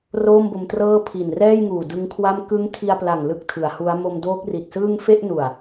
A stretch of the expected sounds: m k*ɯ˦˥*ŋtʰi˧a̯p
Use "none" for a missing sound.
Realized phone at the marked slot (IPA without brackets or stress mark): ɯ˦˥